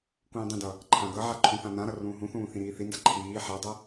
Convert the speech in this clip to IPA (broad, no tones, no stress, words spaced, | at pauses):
kũːdˤĩdʌ | ǃʰãɡʌʕa ǃʰũθãnãɾʌ rũːɦũθũː θĩɾiːθinda ǃʰiː ħadˤʌ